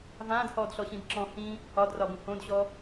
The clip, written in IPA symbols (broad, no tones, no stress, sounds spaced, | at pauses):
v ãː d h ɔː d ɬ ɔ ɕ ĩ d ǁ ɔ̃ h ĩ | ɒ d r ɒ b ũ h õ d ɕ ɔ